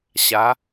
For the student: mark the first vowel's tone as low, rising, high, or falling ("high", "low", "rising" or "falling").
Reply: rising